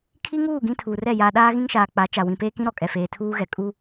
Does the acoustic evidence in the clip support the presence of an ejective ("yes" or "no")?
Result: yes